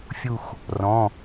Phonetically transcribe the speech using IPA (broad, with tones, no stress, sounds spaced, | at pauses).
fʲ u˧˩ x | r ɔ̃˩˧˩